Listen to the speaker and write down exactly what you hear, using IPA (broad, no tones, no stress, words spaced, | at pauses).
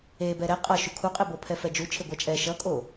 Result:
ebɛ ɾɛ qʼʌ ʃukʰuqʼebo pʰɛfɛd͡ʒu t͡ʃʰeɡʷat͡ʃʼɛ ʃʌkʼo